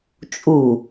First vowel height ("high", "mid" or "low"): high